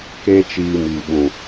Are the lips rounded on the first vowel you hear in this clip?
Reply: no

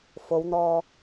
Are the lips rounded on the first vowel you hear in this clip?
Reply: yes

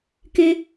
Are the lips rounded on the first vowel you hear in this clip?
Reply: no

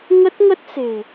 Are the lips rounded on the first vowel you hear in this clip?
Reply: no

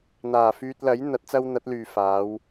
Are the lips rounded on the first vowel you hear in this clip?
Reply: no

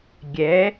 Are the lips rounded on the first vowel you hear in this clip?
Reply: no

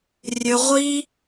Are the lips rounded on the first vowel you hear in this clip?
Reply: yes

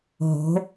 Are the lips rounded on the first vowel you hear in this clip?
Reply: yes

